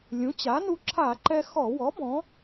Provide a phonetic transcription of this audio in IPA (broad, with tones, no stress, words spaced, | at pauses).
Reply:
lʲũ˩˥t͡ɕa˩˥nu˧ ǁʰa˧˩˧ǃɛ˧ xɔ˧˩˧ wɔ˩˥ bɔ̃˩˥